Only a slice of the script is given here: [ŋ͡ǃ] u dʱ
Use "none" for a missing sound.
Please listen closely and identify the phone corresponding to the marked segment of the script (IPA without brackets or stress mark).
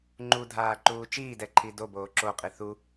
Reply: ŋ͡ǃ